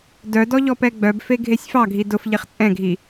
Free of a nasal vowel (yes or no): no